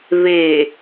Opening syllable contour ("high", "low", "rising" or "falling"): low